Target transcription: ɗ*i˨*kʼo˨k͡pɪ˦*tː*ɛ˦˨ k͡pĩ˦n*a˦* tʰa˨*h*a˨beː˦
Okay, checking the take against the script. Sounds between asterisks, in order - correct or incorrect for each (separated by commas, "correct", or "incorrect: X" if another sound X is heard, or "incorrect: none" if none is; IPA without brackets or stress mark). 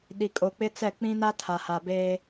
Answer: correct, incorrect: t͡s, correct, correct